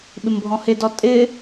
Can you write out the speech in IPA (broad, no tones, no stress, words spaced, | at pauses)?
ɓɪmbʱɔ̃hɪdɔ tʼɪ